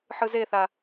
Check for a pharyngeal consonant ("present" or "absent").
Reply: present